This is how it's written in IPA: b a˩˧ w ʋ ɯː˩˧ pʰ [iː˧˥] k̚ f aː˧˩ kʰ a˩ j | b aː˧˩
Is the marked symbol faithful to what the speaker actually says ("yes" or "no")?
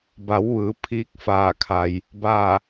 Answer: yes